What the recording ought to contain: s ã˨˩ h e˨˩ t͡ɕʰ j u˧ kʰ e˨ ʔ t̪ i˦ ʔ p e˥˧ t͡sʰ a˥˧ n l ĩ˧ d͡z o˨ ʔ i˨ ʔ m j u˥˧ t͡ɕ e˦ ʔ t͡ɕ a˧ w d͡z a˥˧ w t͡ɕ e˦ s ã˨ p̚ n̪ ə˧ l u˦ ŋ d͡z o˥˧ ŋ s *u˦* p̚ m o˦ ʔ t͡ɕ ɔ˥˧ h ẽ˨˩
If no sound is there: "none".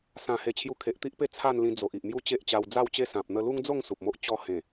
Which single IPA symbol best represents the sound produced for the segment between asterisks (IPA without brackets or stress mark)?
u˨